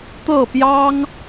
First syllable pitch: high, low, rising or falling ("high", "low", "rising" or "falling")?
falling